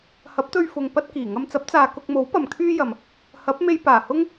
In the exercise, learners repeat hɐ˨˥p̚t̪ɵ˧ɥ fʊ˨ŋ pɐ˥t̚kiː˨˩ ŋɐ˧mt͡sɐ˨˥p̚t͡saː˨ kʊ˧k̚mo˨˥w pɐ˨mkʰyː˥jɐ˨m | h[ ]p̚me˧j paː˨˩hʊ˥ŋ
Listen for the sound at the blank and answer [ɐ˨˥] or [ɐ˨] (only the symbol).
ɐ˨˥